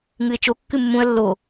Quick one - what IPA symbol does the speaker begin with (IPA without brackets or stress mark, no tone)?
ŋ